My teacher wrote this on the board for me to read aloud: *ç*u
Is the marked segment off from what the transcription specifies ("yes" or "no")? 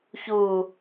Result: no